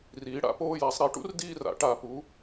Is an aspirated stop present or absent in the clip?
absent